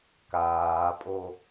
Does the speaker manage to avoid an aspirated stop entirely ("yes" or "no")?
yes